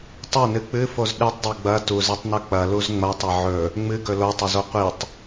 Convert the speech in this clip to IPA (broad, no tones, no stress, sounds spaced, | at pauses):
tˤ ɐ n ɨ k͡p ɨ f o z ɗ ɨ tˤ dˤ o ɡ͡b ɐ t u z i tˤ n ɵ k͡p ɐ l u z ŋ͡m ɐ tˤ ɐ ʕ ɵ | ŋ͡m ɨ ɡ ɵ l o tˤ ɵ z o qʷ i tˤ